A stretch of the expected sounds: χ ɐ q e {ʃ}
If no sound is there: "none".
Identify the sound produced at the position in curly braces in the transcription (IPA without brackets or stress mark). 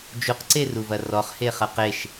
ʃ